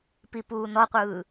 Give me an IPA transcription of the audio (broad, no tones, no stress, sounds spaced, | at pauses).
p i p uː n ɔ qʷ ɯː